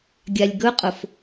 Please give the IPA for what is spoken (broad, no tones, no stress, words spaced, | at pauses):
ɡʲalʲɡɵqʼʊf